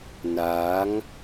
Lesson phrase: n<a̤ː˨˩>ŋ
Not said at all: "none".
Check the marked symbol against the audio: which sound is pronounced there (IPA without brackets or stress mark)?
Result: aː˨˦